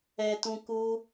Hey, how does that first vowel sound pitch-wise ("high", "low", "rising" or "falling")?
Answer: low